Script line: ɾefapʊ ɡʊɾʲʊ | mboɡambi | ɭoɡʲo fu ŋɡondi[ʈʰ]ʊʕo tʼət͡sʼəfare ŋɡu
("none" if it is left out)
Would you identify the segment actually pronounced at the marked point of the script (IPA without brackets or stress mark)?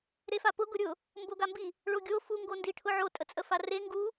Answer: ʈʰ